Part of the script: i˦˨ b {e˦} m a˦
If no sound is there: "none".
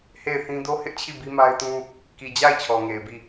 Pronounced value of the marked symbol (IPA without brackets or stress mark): i˦